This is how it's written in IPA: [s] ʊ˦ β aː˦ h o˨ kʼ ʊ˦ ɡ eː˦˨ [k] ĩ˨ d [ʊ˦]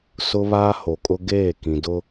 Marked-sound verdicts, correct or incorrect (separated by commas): correct, correct, correct